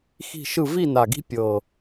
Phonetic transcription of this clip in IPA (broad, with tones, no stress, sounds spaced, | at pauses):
x i̤˥˨ ʃ ɯ˥˨ v i˥˨ n a˨˩ ɡ i̤˦ pʲ ɤ˨˩